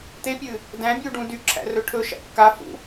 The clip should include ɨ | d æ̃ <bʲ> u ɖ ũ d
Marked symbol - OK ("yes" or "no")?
yes